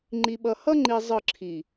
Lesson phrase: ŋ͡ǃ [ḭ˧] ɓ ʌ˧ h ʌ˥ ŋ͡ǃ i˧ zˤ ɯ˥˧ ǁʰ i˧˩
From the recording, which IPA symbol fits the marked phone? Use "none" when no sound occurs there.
i˧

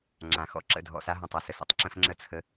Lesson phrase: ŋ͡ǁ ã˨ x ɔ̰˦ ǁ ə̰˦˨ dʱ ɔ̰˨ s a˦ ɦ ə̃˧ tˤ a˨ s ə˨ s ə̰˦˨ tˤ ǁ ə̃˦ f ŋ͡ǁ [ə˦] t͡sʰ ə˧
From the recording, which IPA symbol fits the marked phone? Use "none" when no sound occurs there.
ə˦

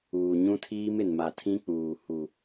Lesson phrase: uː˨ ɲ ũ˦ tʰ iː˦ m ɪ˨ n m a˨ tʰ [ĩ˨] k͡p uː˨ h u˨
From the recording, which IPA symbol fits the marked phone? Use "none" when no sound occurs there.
ĩ˦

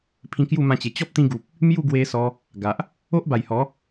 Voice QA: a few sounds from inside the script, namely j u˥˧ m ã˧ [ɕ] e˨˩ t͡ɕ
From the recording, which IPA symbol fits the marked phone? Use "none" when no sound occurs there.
t͡ɕ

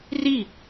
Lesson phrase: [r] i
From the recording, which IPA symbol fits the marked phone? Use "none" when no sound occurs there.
r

